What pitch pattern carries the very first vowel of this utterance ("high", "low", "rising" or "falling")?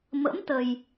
rising